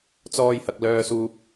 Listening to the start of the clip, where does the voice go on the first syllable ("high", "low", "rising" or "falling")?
high